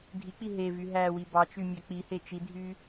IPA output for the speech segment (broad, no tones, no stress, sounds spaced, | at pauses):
dʱ i k͡p i ɦ e v y ɦ æ w i b ɑ t͡ʃ y mʲ æ k͡p i h e t͡ʃ i dʱ y